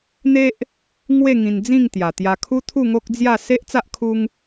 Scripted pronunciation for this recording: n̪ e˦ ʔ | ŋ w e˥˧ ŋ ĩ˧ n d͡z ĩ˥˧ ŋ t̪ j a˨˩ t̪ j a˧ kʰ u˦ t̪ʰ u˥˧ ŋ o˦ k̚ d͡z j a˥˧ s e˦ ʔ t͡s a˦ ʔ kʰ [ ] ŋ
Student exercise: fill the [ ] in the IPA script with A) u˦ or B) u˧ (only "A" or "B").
A